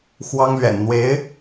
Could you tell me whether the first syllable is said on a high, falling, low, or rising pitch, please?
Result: high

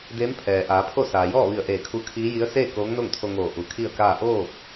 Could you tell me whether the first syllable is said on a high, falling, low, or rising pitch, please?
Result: rising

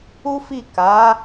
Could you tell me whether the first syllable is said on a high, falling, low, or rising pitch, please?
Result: high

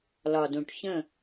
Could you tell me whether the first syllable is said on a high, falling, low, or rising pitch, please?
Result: low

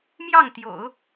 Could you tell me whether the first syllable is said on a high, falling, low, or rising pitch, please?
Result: falling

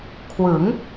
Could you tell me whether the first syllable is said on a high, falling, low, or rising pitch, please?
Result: rising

